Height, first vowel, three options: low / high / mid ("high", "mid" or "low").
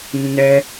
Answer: mid